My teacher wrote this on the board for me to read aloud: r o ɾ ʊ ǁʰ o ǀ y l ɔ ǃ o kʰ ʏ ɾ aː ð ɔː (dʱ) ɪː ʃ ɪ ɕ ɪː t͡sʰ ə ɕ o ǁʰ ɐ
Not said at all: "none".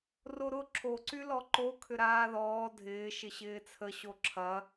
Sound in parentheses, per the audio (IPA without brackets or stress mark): dʱ